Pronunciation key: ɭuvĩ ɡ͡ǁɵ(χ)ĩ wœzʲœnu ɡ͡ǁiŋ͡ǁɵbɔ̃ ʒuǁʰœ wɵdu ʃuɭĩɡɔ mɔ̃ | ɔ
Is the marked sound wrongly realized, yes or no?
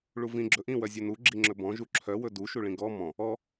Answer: yes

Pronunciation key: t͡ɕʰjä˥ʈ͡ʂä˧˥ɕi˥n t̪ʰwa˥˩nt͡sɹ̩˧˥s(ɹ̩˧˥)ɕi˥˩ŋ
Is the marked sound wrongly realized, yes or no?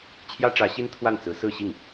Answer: yes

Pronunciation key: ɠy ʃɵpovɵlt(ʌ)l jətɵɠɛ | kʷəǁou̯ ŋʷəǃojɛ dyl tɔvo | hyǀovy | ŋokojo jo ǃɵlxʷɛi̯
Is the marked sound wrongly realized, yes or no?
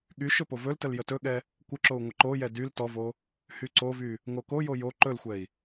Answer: yes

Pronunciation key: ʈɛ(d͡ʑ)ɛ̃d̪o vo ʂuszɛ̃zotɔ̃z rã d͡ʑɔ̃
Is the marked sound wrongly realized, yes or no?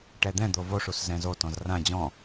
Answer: yes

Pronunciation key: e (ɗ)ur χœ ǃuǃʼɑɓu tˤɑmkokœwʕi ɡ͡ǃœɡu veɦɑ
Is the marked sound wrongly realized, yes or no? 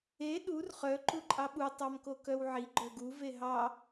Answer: no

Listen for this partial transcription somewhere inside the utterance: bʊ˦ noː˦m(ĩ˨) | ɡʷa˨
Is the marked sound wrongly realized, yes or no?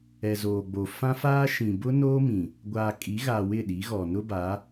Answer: no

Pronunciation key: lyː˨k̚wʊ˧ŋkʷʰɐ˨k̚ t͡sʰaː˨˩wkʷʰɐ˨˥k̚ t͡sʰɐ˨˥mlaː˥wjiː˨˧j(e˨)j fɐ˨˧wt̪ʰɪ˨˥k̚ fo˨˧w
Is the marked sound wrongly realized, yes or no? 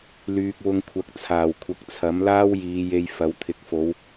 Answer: yes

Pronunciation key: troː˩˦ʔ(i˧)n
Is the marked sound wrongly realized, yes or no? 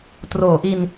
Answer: no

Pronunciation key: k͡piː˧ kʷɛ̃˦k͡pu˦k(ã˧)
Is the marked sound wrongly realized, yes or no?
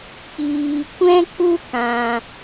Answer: no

